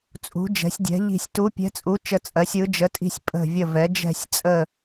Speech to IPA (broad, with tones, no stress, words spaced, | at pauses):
t͡sʼṳ˩˧d͡ʒɛ̤˩˧sʲdʲɛ̤˩˧ ʎi̤˨˩sʲ tu˩˧pʲɛ̤˩˧t͡sʼu˩˧ t͡ʃə˨˩t͡sʼɜ˩˧sʲ ɯ˩˧d͡ʒə˩˧tʼi̤˨˩sʲ pʼə̤˨˩vʲə˨˩ vɛ˩˧ d͡ʒɛ̤˨˩sʲt͡sʼə˨˩